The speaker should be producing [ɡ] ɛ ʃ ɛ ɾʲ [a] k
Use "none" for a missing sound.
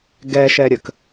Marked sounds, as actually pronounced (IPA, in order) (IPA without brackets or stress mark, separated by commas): ɡ, ə